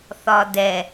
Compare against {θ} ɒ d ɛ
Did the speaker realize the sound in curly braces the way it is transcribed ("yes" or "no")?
yes